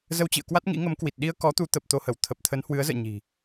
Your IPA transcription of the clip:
z ə˧ w t͡ɕ ḭ˧˨ ə̯ k w a˦˥ t̚ ŋ ḭ˧˥ ŋ ə˨˦ m k w i˨˩ t̚ ɗ i˧ ə̯ k ɔ˨˦ t̪ u˨˦ t̪ ə˨˩ p̚ t̪ o˧ h ə˧˩ w t̪ʰ ə˨˩ p̚ t̪ʰ ə˨˦ n h w ɨ˨˦ ə̯ z ə̰ː˧˨ ɲ i̤˨˩

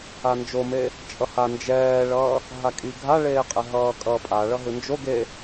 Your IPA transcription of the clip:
a n d͡ʒ o m e | t͡ʃʼ ʌ h a n d͡ʒ ɛː ɭ ʌː | ɦ a kʼ i ɡʱ a ɭ eː qʼ ɛ ɦ ʌː kʼ ʌː pʼ a ɭ ʌ ɦ ɯ n d͡ʒ o ɡ e

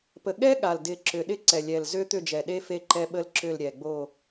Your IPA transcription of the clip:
p ə˨˩ ɠ ɛ˦˥ ɠ a˨˩ l d ɪ˨˩ ǁ ʏ˨˩ ɗ ɪ˦˥ ǀ ɛ˨˩ lʲ ɛ˨˩ l z ʏ˦˥ t̪ ʏ˦˨ d͡ʒ ɛ˨˩ ɗ e˦˥ f e˦˨ ǃ ɛ˦˥ ɓ ə˦˥ l ǁ ʏ˦˨ l ɾʲ ɛ˨˩ ɡ͡b o˦˨

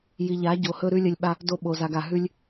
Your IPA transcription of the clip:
j i˧ ʎ a˧˥ ɟ o˧ h ɵ˥ ɾ ʉ˥ lʲ ɐ˥ lʲ ɓ a˥ | d o˥ ɓ o˧ z a˧ ɡ a˧ ɦ ʉ˥ lʲ

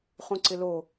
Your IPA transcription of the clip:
χ ũ ǀ ɪ l o

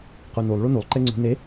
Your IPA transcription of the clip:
q u n u lˠ ɭ u n u lˠ ǃ e ŋ͡ǀ ṳ n e

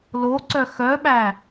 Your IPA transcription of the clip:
l o ǀ œ x œ ɓ æ

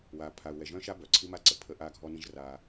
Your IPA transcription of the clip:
w aː˨ pʰ a˨ u̯ w ɛ˨ ʒ œ̃ː˦ ʃ a˦ b œ˨ ǀʰ i˦ m a˦ ǀ ə˨ pʰ ə˦ ʔ aː˦ ɡʱ ɔ˦ n ĩ˦ ʒ r aː˦

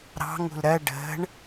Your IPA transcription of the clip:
ɾ ɑ̤ ŋ ṳ l ɾ ɜ ɖ ə̤ ɳ

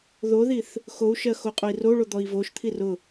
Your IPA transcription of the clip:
ð o ð i θ | x o u̯ ʃ ɜ x o qʼ o i̯ r o ɭ o d̪ ɔ i̯ v o ʃ t̪ʰ i r ʊ

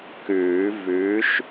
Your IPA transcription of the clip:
k ʉː˨˩˦ v ʉ˨˥ ʃ

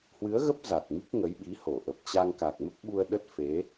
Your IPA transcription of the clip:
h w ɨ˨˦ ə̯ ɣ ə˦˥ p̚ z a˨˩ t̚ m i˦˥ k̚ ŋ ə˨˦ j ɓ i˨˦ h o˧˩ ʔ ə˨˩ p̚ t͡ɕ a˧ ŋ k a˨˩ k̚ m ə˦˥ p̚ ɓ u˧ ə̯ ɗ ə˦˥ t̚ f e˨˦

